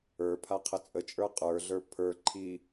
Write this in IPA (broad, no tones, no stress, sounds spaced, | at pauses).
ə˞ pʰ a qʰ ə t͡sʼ ə t͡ʃʼ ə˞ qʼ ə˞ ɮ ə˞ pʰ ə˞ ǃʰ i